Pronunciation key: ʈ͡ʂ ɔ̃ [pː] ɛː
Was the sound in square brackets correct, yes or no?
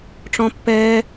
yes